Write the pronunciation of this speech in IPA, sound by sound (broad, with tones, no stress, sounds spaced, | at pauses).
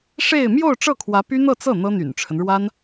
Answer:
ʂ e˥˧ ɪ̯ m j o˥˧ ʊ̯ ʈ͡ʂ ɤ˥˩ kʰ w ä˧˥ p y˥ n̪ ɤ˥˧ t͡s ɤ˥˩ n̪ ɤ˥ n̪ y̰˨˩ n ʈ͡ʂʰ ə˦ n ɻ w a˥ n